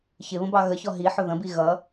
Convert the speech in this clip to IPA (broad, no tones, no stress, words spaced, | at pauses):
çɪβə̃ bɑɣəçɔ ɦiħʊ ðə̃bi ɣʌ